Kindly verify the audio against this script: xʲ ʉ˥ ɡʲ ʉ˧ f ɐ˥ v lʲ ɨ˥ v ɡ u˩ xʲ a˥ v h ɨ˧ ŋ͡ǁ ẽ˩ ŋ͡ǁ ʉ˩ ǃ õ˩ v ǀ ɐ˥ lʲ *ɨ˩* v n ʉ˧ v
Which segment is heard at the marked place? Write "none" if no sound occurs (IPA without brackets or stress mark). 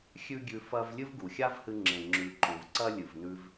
ɨ˩